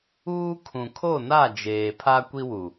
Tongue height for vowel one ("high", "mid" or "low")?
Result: high